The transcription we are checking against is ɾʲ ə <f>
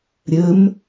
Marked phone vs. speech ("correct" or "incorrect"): incorrect